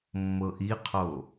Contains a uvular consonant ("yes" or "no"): yes